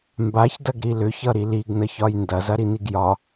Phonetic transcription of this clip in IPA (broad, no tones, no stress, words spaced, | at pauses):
mbaçdɐɡɾi lʏçʌɾi liɡnəçɒj ndɐzɐɾiniɡ jɒ